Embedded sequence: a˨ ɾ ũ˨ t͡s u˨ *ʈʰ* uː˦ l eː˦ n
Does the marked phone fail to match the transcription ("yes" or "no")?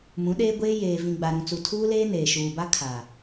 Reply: yes